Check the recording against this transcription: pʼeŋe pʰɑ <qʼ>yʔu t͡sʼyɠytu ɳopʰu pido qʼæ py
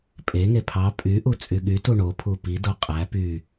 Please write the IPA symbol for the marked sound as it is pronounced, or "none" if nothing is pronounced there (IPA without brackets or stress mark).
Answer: pʼ